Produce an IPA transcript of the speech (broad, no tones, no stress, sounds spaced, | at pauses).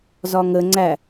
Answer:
z ɒ ŋ ə ŋ͡ǀ æ